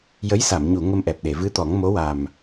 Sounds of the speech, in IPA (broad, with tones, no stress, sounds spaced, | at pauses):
j ə˧˥ j s a˨˩˨ m ɲ u˨˩˨ ŋ ə˧ m ʔ ɛ˨˩ p̚ ɗ e˨˩˨ v ɨ˧˥ t̪ ɔ˨˩˦ ŋ m o˧˥ w a˨˩ m